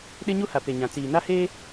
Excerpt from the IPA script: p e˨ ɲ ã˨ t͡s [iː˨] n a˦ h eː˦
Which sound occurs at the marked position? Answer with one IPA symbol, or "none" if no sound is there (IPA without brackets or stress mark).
iː˨